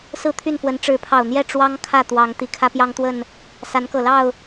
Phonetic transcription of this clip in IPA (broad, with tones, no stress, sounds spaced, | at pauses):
s ɹ̩˥˨ t̪ʰ y˥˨ n f w ə˨˦ n ʈ͡ʂ ɻ̩˨˦ pʰ ɑ˨˩ ʊ̯ n̪ j ɛ˥˨ ʈ͡ʂ w ɑ˦ ŋ kʰ ä˥˨ t̪ w ɑ˨˦ ŋ t̪ i˨˩ kʰ ä˦ p j ɑ˦ ŋ t̪ w ə˥˨ n | s a˨˦ n k ɤ˨˩ l ɑ˥˨ ʊ̯